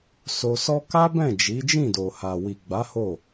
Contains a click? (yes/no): no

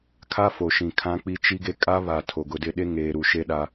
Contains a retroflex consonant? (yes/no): no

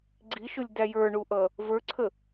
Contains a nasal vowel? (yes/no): no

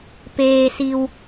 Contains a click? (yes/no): no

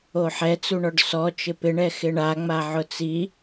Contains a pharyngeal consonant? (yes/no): yes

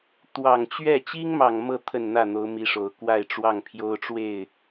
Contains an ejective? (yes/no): no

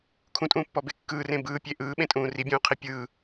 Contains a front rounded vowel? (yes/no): no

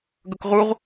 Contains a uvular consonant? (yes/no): yes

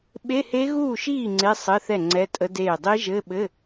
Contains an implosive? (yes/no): yes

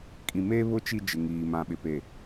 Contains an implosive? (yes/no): yes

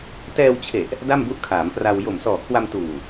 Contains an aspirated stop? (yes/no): yes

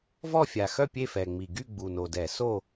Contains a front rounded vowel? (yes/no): yes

